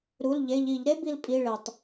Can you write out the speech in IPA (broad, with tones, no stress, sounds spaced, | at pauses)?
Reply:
ɾ u˩˧˩ l ʎ e˩˧˩ ʎ i˧˩˧ ʎ ɾ e˥ b i˧ l pʼ i˩˧˩ ɭ e˩ tˤ